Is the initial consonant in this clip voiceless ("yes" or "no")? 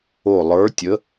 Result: no